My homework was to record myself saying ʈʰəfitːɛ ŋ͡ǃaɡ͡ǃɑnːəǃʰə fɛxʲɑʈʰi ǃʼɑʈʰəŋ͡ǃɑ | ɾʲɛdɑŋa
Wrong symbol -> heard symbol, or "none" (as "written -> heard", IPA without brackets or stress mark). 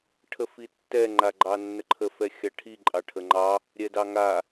none